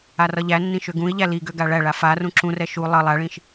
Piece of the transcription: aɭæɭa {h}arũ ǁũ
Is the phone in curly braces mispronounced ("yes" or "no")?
yes